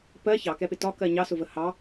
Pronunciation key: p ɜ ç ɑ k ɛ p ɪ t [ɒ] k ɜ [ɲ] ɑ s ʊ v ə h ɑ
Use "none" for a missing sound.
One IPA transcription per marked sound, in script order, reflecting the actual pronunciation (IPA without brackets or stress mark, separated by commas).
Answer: ɒ, ɲ